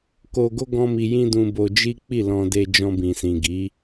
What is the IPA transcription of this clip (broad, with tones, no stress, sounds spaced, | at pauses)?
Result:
k o˧ ɡ o˦ ɡ ɔ̃˦ m i˧ j ĩ˦ d ũ˧ b o˧ d͡ʒ i˦ k͡p i˦˨ l ɔ̃˧ d e˧ d͡ʒ ɔ̃˧ b ĩ˨ s ĩ˨ ɡ i˨˦